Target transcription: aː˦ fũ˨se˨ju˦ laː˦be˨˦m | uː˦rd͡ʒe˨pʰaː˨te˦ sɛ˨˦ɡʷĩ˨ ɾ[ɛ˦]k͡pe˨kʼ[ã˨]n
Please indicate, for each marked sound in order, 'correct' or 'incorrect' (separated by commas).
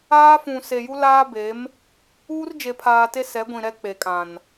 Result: correct, correct